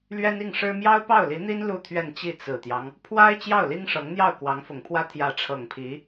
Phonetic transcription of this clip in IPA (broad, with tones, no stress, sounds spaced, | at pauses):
l ɥ ɛ˥ n i˥˩ ŋ ʂ ɻ̩˥ m j ɑ˥ ʊ̯ p ɑ˥˩ ʊ̯ l i˧˥ n̪ i˥ n l u˥˧ t̪ʰ ɥ ɛ˥˧ n t͡ɕ i˥˩ t͡s ɹ̩˨˩ t̪ j ɑ˦ ŋ | pʰ w a˥ ɪ̯ t͡ɕ j ɑ˥˩ ʊ̯ l i˥ ŋ ʂ ɤ˧˥ ŋ n̪ j ɑ˥˩ ʊ̯ k w ɑ˧˥ ŋ f ʊ˨˩ ŋ pʰ w ä˥ t̪ʰ j ä˧˥ ʈ͡ʂʰ ɤ˨˩ ŋ pʰ i˧˥